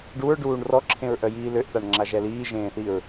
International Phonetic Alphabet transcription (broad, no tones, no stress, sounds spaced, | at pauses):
ɖ u ɹ ɖ uː ɳ r ɔ ǁʰ ẽ ɹ ʔ œ j iː l ø ʔ t̪ a ɳ ŋ͡ǁ a ʒ ɛ l iː ʒ ẽː θ i ɹ